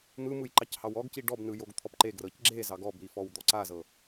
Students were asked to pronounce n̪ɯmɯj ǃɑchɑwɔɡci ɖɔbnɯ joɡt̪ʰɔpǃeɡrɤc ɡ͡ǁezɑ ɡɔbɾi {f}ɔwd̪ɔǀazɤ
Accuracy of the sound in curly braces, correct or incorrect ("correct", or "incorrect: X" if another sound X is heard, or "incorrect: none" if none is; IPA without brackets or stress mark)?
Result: correct